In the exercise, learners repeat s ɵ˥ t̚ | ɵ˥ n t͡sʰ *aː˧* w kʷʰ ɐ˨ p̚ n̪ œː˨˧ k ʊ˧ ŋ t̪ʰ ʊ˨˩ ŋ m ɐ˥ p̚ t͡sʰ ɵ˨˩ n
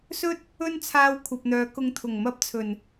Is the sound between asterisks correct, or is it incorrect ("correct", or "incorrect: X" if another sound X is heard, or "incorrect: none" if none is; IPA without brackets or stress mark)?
correct